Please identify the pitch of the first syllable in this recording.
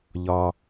high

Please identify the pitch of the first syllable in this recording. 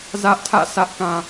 high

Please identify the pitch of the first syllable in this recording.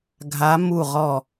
rising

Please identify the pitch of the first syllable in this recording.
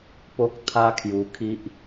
high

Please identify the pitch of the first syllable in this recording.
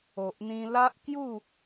low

